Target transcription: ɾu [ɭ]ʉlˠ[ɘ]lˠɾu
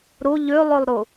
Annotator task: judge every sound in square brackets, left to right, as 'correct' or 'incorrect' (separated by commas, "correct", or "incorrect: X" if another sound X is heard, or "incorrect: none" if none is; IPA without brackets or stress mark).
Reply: incorrect: ʎ, incorrect: ʉ